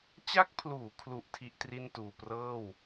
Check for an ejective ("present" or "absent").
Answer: absent